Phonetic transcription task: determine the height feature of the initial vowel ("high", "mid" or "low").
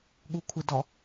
high